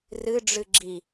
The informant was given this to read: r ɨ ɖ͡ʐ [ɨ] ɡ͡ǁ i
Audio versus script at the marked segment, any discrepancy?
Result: no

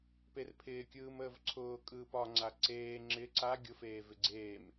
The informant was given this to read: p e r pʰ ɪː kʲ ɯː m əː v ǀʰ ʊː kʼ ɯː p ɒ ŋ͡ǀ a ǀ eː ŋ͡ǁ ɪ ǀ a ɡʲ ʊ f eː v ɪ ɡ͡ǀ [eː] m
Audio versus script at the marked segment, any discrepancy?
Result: no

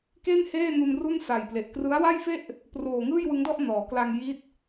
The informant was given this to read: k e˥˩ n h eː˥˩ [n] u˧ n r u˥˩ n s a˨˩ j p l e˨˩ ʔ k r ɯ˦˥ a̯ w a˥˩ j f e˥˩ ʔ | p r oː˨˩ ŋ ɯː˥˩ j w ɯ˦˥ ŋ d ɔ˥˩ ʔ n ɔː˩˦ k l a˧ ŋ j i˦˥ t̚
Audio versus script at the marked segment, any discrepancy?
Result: no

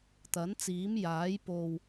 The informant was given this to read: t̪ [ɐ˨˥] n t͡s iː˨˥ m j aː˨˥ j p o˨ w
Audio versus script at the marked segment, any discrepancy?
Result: no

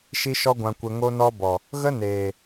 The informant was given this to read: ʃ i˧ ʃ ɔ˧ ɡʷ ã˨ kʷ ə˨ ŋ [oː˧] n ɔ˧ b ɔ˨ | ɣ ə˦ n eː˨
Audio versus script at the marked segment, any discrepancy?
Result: yes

